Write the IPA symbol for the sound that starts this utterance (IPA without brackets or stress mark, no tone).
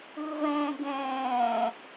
ɯ